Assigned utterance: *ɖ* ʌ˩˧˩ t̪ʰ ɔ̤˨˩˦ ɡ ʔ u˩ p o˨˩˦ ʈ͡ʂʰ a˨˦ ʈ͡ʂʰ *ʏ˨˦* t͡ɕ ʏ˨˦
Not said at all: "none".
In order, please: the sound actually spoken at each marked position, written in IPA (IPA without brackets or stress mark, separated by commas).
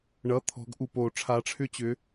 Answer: ɳ, ʏ˦